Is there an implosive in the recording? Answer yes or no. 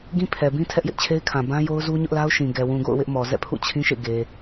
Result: no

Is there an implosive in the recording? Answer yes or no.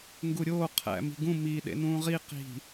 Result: yes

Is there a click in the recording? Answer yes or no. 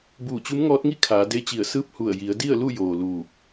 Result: no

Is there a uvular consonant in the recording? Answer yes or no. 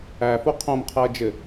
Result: yes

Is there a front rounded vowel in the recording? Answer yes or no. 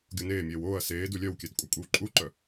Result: yes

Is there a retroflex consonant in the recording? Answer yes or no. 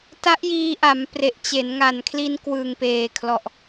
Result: no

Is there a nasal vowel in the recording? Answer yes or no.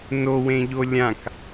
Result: yes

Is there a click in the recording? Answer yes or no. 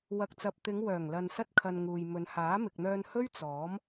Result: no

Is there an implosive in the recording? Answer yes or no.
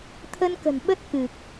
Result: yes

